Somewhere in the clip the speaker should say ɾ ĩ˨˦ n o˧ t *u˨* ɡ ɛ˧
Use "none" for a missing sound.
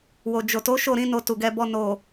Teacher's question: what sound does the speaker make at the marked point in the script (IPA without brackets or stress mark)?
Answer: u˨